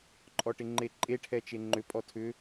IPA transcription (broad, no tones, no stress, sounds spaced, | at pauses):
ǃʼ ɔ ʈ ɪ ŋ͡ǃ e ǃʼ e ʈʰ ɛ t͡ʃ e ŋ͡ǃ ʏ pʼ ɔ tʰ ʏ